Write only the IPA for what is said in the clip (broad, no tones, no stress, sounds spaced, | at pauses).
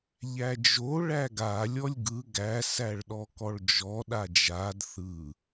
ʎ æ d͡ʒ o ɭ æ ɡ a lʲ ɔ lʲ ɡ ɯ ɡ æ s æ ɭ ɗ ɔ k ɔ ɭ d͡ʒ ɔ ɗ a d͡ʒ a d θ ɯ